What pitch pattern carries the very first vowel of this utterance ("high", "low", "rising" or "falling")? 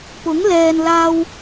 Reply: rising